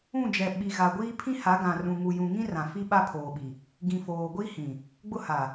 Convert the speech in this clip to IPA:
ũ˦˨d͡ʒɛ˨ ɓi˨ɣa˨ ɡʷiː˦pʰĩ˦ha˨˦ ɡã˨rũ˨ ŋu˨jũ˨ ŋĩ˦rã˨ fi˦ɓa˦ pʰoː˨ɓi˨ | ɡĩ˨foː˨ ɡʷi˦hĩ˨ | ɡ͡bʊ˦ha˨

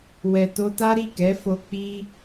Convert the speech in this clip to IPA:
wɛ˨to˧ta˦ ɾi˦˨kɛ˨˦fo˧ k͡pi˦

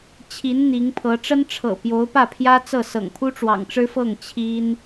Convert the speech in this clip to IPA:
t͡ɕʰi˧˥n n̪i˧˥ŋpʰɤ˧˥ ʈ͡ʂə˥nʈ͡ʂʰɤ̰˨˩pjo˧˥ʊ̯pä˥˩ pʰjä˥t͡sɤ˥˩ sɤ̰˨˩ŋpʰu˥ ʈ͡ʂwɑ̰˨˩ŋʈ͡ʂɻ̩˥fɤ˥˩ŋ t͡ɕʰi˥n

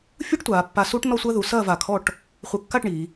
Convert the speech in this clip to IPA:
fʲuː˥ʈtʷaː˩˧pːa˧ suː˥ʈnɔ˥˧sʷɐː˥ðu˩˧ sɐː˥˧vaː˧˩kʰɔ˥˧ʈ | χʷɨ˧˩kːa˥˧ʈ ɳi˩˧

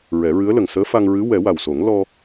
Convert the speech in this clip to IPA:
ɹɛ˨˩˦ɹɨ˧˥ə̯lə˨˩ŋ səː˧˥fa˧ŋɹɨ˧˥ wɛ˨˩˦wa˨˩wso˨˩˦ŋ lɔ˧

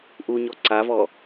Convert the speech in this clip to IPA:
ʔuɲɔ ǀavɔ

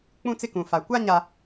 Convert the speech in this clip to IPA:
k͡pũ˦t͡sɪ˦kũ˨ fa˨ kʷa˦ɲa˨

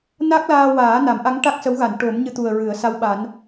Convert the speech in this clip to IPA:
na˦˥k̚laː˧waː˨˩˦ na˨˩˦mʔa˧˥ŋ ʈa˦˥k̚sə˧˥wɣa˨˩˨n ʈo˨˩˦mɲɨ˧t̪u˨˩ə̯ ɹɨ˨˩˦ə̯ sa˧˥wɓa˨˩˦n

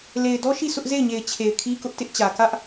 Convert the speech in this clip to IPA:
le˨ɪ̯dɔ˦ ʃi˦˨ sʰʊ˦ʔ ze˦˨ɪ̯ɲe˨ɪ̯ t͡ɕʰe˨ɪ̯kʰi˦kʊ˦ʔtɪ˦ʔ t͡ɕä˨ kä˦ʔ

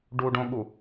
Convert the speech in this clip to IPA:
ɖuɖõɠu

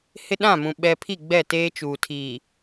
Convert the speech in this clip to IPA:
hɪ˦ɗã˦˨mũ˨ ɓɛ˨ pʰi˦˨ɡ͡bɛ˦˨teː˦t͡ʃuː˨ tʰiː˨

